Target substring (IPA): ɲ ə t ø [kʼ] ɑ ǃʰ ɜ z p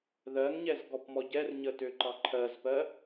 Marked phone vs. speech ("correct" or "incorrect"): incorrect